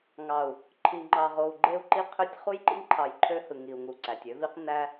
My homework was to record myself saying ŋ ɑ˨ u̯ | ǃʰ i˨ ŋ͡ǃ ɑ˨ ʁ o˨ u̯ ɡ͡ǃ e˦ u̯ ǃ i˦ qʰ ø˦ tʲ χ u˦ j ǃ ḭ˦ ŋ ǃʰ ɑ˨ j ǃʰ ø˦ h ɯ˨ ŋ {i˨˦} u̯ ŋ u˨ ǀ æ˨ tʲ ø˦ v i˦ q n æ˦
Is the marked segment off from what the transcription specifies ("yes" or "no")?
yes